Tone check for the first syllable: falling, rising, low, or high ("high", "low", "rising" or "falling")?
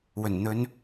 low